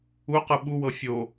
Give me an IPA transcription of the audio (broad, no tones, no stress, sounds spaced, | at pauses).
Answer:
u q ɯ ɓ u w ɤ fʲ o